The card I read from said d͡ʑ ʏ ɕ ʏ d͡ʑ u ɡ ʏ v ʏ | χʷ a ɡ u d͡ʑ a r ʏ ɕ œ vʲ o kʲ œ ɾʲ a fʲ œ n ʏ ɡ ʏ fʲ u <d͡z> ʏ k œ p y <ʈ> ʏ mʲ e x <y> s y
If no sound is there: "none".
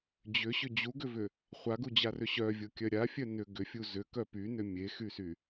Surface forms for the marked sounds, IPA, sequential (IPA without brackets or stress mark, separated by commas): z, n, y